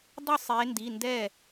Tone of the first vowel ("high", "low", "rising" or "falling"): falling